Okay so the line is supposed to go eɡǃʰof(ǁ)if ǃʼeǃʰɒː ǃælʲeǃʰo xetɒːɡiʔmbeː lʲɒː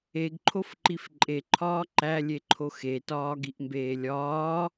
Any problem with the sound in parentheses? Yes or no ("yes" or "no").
yes